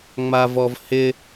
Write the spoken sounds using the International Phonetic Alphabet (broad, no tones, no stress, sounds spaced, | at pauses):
ŋ͡m a v ɔ v h ɪ